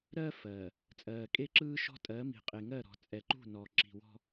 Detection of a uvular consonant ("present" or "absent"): present